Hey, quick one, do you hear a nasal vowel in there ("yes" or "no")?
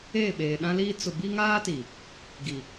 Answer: yes